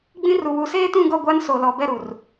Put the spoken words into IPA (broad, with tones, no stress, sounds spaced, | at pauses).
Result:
ɡ͡b ĩ˦ r u˨ w u˨ s eː˦ t ũ˦˨ ɡ ɔ˦˨ ɡʷ a˦ n s o˨ l ɔ˨ b ɛ˦˨ ɾ u˨ r